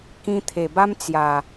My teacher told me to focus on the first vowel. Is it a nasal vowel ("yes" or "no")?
yes